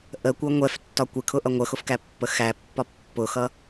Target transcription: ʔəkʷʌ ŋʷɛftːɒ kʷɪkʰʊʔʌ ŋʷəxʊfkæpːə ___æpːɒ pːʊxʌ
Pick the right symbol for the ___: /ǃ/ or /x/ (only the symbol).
x